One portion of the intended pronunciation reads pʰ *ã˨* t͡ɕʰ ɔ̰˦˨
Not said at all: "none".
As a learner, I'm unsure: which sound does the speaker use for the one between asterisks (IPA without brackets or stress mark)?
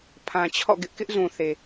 ã˨